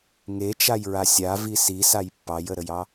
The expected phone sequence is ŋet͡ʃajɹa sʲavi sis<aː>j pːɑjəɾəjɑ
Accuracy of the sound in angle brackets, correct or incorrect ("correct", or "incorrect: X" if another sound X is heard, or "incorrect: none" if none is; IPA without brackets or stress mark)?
incorrect: a